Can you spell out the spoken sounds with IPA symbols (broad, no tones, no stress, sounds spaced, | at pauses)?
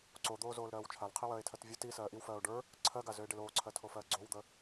ǀ o d̪ oː z oː l ɾ ɜː w t͡ʃʰ a l qʰ i w ɜː e̯ tʰ ɜ t vʲ o t i s ɜː ʔ i w f ɜː o̯ ɖ ə˞ | ǀʰ ɜ ɡ a z ø e̯ ɖ e l oː ǀʰ ɜ tʰ o f ɜː ɡ͡ǀ o w d̪ ə